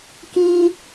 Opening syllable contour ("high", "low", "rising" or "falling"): high